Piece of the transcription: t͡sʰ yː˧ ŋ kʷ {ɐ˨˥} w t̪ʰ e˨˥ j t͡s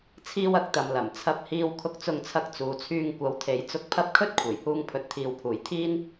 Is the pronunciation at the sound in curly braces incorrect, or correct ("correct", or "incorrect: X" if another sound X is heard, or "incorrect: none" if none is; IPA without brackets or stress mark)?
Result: correct